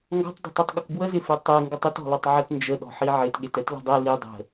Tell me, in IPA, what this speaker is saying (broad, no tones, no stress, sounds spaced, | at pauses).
ŋ ɡ ɔ̤ tˤ dˤ e̤ tˤ e tˤ ɠ ə k b w ə z ɪ f e tˤ e ŋ ɡ ə tˤ ɪ t ɔ̤ l ɔ tˤ ʕ ə t n d͡ʒ ə ɗ ɔ̤ ħ i ʕ ɪ t ɠ e t ɛ t l ə̤ dˤ ɛ l i dˤ ə̤